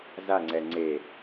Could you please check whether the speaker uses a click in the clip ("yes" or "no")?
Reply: yes